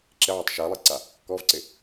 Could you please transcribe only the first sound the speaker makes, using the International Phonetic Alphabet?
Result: ǁ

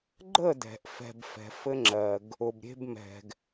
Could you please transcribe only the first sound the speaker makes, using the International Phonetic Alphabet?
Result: ɡ͡ǃ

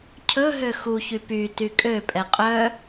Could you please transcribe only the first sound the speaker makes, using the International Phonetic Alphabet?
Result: cʰ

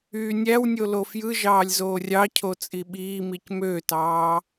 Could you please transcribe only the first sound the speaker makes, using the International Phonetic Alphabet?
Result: yː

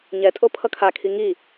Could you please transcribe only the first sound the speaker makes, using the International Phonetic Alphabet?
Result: ɲ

